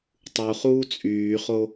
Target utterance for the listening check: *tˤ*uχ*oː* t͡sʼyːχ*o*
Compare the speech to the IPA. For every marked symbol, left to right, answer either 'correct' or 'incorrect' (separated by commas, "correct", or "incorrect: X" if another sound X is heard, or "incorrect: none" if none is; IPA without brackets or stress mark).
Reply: correct, incorrect: uː, correct